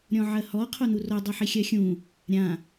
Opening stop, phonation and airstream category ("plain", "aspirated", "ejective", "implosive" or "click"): aspirated